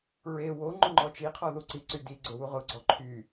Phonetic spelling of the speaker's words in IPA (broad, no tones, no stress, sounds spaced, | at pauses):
ɹ e w o ŋ͡ǃ ʊ ŋ͡ǃ ɔ t͡ʃ i qʰ ɔ ð u ǀ i ǀ y d i ɡ͡ǀ o w u ʁ ʊ ɡ͡ǀ ɔ ǃʰ y